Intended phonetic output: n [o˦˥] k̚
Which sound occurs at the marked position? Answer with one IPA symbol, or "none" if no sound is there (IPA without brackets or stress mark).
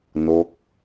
o˦˥